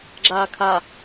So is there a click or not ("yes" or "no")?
yes